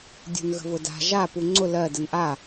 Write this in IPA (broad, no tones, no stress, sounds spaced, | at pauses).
dʲ ṳ n ɣ ə̤ v ʊ d a̤ ʒ a p u ŋ͡ǀ ʊ l ɜ d ə n ʔ a